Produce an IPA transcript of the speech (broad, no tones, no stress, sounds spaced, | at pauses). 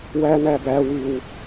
w æ n æ b æ w ʉ w